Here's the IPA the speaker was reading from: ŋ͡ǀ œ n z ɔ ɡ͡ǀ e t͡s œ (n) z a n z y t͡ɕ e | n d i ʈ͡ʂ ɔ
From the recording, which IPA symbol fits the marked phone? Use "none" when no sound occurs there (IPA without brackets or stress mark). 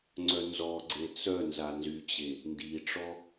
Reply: n